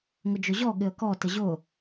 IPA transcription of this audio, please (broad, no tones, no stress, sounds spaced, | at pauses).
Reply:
ŋ ʊ d͡ʒ ʊ ʑ ɔ ɠ ɪ ə̯ k ɔ t ɪ ʑ ʊ